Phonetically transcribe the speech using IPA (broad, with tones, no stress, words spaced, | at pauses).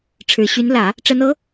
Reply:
ʈ͡ʂʰɻ̩˨˩ɕy˧˥nlä˨˩˦ | ʈ͡ʂə˧˥nɤ˧˥